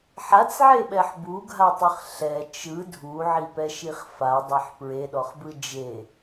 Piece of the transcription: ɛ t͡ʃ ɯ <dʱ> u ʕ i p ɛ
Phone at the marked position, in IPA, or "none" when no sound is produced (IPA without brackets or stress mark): dʱ